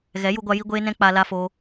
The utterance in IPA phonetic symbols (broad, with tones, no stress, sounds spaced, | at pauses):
ɣ ɛ˨˦ j u˧ ɡʷ a˧ j i˧ ɡʷ eː˧ n ɛ̃˧ k͡p a˧ l a˦ f o˦